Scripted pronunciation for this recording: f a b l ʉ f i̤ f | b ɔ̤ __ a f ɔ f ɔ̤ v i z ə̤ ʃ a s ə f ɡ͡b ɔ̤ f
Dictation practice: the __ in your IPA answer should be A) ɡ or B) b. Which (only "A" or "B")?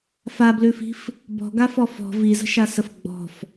A